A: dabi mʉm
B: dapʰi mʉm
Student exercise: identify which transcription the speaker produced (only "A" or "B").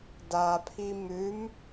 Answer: B